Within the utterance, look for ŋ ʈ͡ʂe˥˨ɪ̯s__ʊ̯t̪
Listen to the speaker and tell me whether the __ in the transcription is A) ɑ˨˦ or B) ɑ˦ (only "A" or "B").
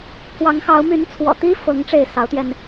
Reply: A